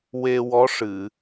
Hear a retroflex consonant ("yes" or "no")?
yes